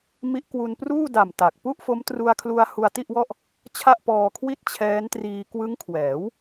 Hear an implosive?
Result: no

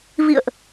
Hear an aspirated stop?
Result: no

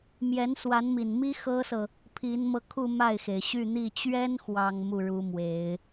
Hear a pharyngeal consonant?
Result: no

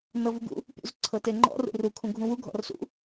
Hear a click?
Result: yes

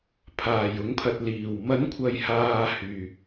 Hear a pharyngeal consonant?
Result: no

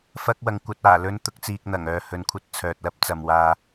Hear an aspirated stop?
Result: yes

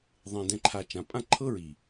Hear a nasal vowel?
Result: yes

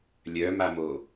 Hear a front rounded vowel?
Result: yes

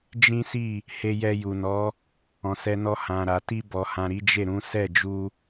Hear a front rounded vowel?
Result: no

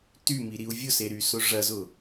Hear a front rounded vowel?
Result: yes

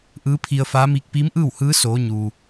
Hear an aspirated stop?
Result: yes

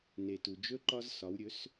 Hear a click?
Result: yes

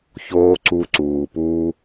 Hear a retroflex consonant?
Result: no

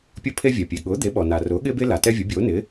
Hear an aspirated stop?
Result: yes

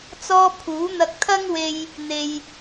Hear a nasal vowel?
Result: no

